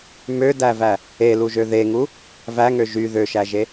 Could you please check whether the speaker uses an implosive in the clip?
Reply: no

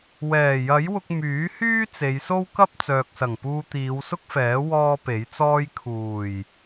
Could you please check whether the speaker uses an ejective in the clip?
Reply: no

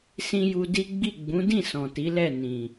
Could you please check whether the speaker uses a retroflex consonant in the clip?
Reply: no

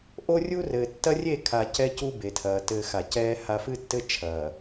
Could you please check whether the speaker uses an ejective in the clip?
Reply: no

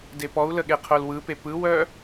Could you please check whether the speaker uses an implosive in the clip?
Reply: yes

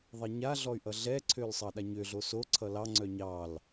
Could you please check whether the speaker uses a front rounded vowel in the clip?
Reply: yes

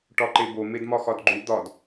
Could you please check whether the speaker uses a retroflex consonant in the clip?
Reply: yes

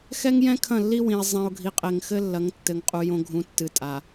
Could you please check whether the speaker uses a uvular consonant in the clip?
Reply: yes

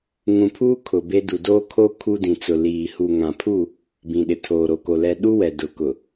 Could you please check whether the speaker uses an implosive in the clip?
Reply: yes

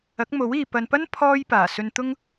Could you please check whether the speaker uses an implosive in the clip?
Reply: no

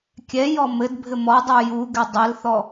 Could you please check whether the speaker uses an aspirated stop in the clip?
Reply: no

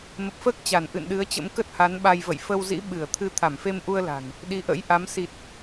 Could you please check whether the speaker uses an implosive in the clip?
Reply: yes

